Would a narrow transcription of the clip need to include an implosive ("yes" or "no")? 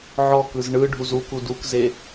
no